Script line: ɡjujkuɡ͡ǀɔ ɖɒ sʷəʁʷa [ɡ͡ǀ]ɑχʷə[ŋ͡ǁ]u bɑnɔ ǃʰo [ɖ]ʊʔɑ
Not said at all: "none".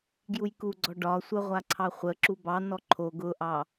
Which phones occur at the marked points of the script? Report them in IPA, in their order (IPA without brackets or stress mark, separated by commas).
ǀʰ, ǁ, ɡ